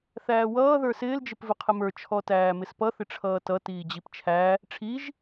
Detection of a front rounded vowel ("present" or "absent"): absent